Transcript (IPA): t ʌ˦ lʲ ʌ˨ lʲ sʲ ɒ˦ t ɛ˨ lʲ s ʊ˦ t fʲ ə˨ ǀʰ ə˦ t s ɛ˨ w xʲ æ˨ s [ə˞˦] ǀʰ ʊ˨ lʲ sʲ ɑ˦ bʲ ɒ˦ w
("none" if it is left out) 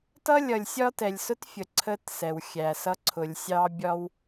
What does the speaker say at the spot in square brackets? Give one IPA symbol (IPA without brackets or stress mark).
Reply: ʌ˦